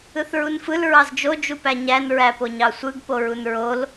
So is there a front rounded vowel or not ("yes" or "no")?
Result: no